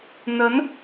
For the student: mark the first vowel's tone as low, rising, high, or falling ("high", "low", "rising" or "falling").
rising